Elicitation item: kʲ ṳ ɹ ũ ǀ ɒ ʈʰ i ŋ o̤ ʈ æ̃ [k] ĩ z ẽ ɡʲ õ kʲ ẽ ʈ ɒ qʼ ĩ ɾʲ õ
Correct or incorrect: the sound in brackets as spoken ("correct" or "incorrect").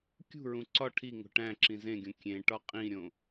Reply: incorrect